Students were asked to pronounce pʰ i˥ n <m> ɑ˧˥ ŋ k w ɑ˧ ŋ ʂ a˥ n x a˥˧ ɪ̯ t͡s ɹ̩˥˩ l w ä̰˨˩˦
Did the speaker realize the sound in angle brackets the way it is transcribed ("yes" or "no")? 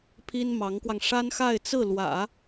yes